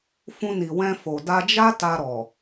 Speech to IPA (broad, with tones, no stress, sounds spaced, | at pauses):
f ũ˧ n i˨ w ɛ̃˧ f o˨ d a˧ d͡ʒ a˦ t a˧ ɾ ɔ˨